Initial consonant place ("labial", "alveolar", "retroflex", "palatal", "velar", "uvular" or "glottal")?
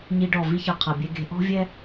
palatal